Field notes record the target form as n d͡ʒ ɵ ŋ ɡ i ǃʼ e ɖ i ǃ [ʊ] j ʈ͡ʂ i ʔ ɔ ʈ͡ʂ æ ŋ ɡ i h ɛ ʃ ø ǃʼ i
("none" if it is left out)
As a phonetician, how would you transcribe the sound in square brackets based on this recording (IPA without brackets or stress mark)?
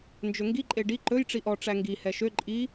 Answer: ɵ